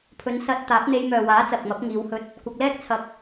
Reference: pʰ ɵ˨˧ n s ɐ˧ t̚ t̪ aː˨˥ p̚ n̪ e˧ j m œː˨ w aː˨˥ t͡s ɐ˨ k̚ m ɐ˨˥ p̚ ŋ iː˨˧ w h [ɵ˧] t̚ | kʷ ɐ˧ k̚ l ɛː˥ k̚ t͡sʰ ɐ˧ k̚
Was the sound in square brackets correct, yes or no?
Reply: yes